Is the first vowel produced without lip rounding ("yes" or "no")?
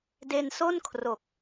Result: yes